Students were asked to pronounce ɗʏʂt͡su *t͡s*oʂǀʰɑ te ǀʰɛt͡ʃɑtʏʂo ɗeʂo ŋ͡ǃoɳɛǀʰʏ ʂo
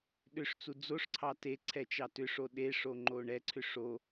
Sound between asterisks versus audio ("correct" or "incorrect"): incorrect